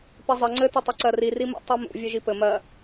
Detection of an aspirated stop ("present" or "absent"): absent